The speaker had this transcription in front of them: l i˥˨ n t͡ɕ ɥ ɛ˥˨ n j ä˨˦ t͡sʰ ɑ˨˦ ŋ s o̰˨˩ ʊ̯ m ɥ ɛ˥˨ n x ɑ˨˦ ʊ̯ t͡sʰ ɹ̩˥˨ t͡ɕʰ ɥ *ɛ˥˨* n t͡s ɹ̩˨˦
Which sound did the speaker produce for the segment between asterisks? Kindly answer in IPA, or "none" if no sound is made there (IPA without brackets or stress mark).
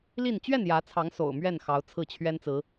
ɛ˦